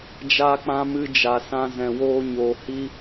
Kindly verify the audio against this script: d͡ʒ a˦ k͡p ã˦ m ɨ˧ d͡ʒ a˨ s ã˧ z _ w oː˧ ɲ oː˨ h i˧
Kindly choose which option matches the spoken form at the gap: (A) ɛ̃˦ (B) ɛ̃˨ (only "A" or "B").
B